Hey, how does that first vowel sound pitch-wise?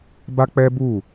high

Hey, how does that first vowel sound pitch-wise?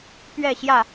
falling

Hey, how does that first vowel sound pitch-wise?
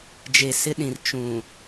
low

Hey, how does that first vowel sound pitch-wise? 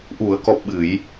low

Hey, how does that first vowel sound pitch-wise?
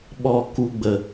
falling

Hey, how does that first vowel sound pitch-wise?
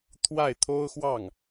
falling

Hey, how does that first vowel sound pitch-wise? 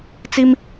high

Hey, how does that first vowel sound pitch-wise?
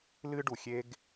high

